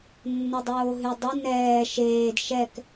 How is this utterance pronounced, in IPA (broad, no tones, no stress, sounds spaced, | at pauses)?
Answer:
nː ɛ dˤ oː ɦ ʉ dˤ ə n ɛː ʃ eː d ʃ ɛ k